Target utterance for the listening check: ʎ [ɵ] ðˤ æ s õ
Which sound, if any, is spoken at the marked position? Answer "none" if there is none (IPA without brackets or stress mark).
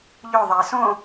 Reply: ɵ